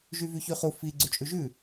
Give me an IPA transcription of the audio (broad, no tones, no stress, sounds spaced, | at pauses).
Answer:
ʒ y v y ç y χ u f i ɡ͡ǀ ʉ t͡ʃʼ ʉ ʒ ʉ